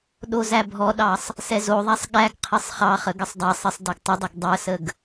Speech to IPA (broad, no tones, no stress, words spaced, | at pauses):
ɗozæbʱɔɗɑsˤ | sɛzoðˤæsˤ ɠæɡ qʰɘsˤχɑχə ɡəsˤdˤæsˤɘsˤ dɘɡtˤədˤəɡ dˤəsəɡ